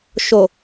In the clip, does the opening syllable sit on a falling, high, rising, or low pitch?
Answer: low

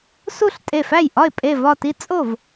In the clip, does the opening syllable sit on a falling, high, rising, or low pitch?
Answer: falling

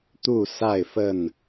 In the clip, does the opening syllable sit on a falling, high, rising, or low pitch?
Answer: falling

